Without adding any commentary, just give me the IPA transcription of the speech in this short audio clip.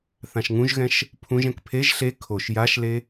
θ ã ʃ ŋ ũ ʒ ɣ ɛ̃ ʃ | pʰ ũ ʒ ɛ̃ k pʰ e ʒ ɬ e kʰ o ʃ j a ʃ l e

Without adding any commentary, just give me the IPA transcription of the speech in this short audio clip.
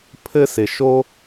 pʰ ɘ˦ s ɪ˧ ʃ o˦

